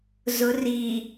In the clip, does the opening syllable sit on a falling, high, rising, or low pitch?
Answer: rising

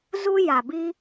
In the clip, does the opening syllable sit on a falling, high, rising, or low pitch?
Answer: high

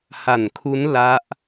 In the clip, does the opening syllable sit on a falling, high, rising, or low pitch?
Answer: low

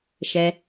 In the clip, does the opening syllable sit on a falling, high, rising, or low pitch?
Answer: low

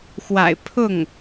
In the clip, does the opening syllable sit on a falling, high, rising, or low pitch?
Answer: low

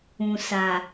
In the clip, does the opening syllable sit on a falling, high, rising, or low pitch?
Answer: low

